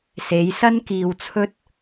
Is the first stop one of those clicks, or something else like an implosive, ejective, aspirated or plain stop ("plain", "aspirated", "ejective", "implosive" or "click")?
plain